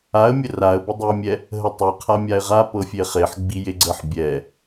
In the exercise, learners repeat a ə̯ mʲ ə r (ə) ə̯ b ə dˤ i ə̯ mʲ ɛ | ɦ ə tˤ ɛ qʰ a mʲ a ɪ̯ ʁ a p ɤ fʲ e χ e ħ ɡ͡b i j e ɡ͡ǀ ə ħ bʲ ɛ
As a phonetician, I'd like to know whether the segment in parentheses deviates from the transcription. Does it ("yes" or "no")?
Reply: yes